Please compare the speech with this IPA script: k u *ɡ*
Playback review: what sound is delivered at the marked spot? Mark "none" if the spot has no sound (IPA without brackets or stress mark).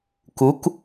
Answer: k